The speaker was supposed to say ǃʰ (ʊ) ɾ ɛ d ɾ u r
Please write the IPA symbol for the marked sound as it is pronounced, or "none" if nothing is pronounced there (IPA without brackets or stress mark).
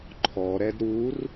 ɔ